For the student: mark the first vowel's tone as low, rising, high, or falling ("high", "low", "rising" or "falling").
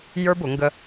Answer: high